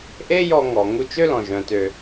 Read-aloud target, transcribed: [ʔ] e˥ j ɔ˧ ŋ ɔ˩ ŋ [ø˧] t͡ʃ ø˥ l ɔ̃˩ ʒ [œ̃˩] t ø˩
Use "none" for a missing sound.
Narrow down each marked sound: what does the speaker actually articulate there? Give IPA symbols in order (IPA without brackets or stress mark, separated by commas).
ʔ, u˧, œ̃˩